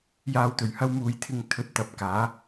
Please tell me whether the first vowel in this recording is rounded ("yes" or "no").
no